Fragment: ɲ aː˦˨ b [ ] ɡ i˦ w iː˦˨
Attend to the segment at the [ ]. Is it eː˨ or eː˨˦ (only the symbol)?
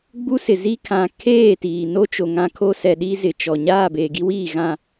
eː˨